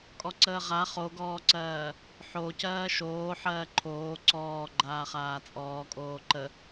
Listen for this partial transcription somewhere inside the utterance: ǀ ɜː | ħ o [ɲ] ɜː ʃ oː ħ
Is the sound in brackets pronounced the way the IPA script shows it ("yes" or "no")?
no